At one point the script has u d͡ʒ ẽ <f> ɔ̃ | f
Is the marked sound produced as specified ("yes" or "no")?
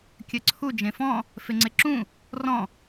yes